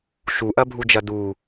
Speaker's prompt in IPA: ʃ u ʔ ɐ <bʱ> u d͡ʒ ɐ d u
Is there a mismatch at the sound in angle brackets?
no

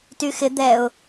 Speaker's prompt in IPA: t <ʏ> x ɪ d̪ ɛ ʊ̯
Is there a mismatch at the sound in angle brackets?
yes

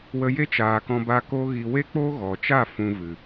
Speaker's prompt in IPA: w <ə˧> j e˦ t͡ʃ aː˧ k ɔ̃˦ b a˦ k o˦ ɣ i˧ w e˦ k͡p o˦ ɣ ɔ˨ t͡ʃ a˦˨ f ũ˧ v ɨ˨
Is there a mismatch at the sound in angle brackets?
no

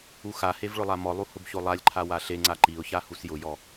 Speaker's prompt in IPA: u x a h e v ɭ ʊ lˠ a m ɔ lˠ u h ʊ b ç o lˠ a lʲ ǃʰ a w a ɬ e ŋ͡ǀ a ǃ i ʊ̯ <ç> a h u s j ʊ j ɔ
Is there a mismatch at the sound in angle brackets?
no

